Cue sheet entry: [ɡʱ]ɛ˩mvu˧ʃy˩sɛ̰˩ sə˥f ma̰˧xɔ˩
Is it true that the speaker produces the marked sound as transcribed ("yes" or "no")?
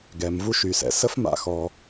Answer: no